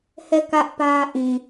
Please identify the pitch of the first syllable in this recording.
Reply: falling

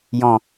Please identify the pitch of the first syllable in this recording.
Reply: low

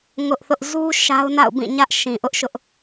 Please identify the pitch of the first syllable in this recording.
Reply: high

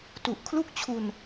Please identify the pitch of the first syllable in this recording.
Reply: low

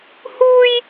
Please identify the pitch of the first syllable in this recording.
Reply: high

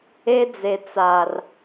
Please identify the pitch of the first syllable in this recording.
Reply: high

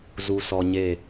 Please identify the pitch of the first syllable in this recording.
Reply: low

